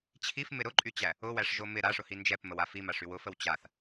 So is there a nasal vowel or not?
no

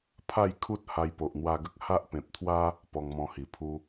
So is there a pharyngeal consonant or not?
no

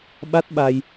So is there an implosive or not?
yes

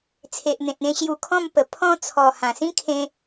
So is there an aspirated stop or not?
yes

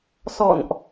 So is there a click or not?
no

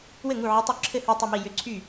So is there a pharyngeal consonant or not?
yes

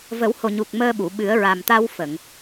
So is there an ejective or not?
no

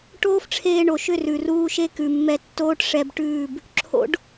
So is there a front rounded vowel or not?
yes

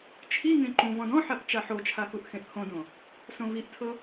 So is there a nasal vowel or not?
yes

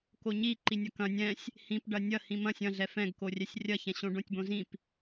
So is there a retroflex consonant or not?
yes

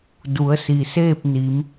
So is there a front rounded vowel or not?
no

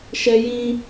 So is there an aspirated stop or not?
no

